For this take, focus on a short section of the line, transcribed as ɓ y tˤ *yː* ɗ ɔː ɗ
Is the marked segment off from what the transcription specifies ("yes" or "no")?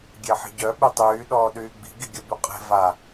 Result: no